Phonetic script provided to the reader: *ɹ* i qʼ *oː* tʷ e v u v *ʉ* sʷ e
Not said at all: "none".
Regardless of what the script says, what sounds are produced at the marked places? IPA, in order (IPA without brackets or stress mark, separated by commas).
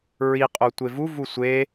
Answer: ɹ, o, u